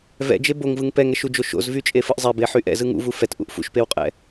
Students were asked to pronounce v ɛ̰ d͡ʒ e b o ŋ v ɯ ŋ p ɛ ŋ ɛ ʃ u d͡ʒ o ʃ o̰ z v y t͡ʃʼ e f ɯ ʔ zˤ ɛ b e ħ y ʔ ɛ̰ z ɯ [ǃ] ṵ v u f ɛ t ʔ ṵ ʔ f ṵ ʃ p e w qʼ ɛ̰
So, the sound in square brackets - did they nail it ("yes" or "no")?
no